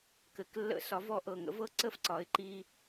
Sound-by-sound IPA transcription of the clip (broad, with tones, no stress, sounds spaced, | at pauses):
k ɘ˩ k lː ə̰˧˩˧ s ɒ˩˧ v ɔ˧˩˧ ʔ ɤ˩ ŋ ə̰˨˥ v ɤ˥˨ ǀ ə˥˨ f ǀ ɒ˩˧ ɪ̯ ǃ i˧